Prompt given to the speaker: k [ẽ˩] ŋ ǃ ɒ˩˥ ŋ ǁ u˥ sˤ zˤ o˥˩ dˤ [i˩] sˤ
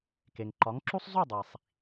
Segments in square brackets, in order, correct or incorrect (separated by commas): incorrect, correct